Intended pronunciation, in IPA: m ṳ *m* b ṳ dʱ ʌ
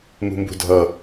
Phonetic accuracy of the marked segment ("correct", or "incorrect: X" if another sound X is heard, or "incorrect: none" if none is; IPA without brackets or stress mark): correct